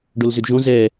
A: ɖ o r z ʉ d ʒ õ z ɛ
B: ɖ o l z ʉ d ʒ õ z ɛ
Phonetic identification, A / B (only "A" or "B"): B